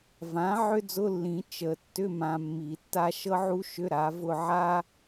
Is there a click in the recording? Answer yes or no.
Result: no